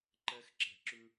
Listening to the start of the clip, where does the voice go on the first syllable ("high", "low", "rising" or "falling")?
rising